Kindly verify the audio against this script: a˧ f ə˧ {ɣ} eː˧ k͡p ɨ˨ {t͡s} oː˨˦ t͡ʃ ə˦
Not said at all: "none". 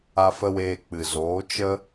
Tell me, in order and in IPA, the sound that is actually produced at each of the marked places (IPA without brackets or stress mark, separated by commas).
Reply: w, z